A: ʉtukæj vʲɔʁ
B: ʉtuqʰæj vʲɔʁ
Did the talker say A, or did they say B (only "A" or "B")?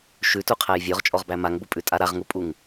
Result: B